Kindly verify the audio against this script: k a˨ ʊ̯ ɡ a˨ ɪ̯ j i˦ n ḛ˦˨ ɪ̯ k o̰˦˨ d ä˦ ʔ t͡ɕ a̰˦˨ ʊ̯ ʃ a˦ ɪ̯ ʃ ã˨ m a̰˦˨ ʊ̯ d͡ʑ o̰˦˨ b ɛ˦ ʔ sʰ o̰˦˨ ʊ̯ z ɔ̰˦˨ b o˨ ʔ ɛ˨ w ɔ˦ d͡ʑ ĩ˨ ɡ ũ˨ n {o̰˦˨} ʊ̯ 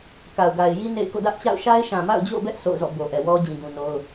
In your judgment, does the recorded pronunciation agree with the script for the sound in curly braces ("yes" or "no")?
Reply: no